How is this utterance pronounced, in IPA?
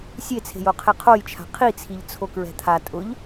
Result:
sʲ e t͡sʰ e̤ j o qʰ e qʰ o j t͡ʃʰ a̤ qʰ i t͡sʰ i ʎ t͡sʰ o k ɹ ɛ̤ t̪ʰ a tʼ ʊ ʎ

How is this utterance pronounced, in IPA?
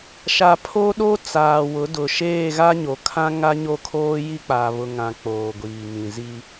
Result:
ʃ a˨ pʰ o˦ ɗ o˦ t͡s aː˨ w ʊ˨˦ d ʊ˨ ʃ eː˦˨ ɣ a˦ ɲ o˨ kʰ ã˦ ŋ a˦ ɲ o˦˨ kʰ oː˦ j i˦ k͡p a˨ β ʊ˨ ŋ ã˨ k͡p oː˨ ɡʷ iː˨ ŋ ĩ˨ z i˦

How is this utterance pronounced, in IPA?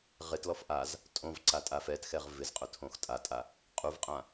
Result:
ʁ ɪ t l ɔ f ʔ a z | tʼ õ v ǀ a tʼ a f ɛ t x ɛ ʁ v ɪ z qʼ ʊ tʰ õ x tʼ a tʼ a | qʼ u v qʼ ã

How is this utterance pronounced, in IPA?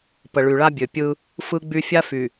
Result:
p ə˨ ɭ y˨ ɭ a˦ bʲ ø˨ pʲ ɯ˦ | f ɯ˦ ɡ͡b y˦ fʲ a˦ f y˨

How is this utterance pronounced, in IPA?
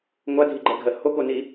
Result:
ŋʷ a dʱ i ɡ͡ǃ ɜ ɡʱ ɜ h o k o n i

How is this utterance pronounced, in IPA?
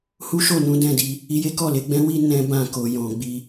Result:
h u˦ ʃ o˦˨ n ũ˨˦ d ɛ̃˦˨ d i˧ | i˧ j e˦ k ɔ˦˨ l e˨˦ ɡ͡b ɛ̃˦ w i˦ n ɛ̃˦ b ã˦˨ k o˨ j ɔ̃˨ ɡ͡b i˧

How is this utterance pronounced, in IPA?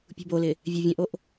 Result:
pʲ ṳ b o l ɪ | vʲ ø vʲ œ̃ ʔ o ʔ

